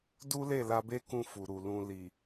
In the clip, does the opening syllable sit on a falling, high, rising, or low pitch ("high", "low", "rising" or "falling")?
high